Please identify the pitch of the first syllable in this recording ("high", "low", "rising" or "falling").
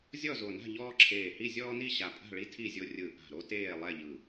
falling